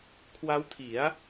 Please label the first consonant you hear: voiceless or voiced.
voiceless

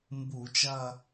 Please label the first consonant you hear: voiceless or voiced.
voiced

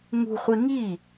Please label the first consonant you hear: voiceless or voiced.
voiced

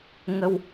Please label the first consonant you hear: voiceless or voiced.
voiced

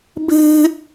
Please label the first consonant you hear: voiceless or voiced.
voiced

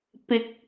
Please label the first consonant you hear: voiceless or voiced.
voiceless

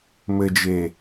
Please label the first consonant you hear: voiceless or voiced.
voiced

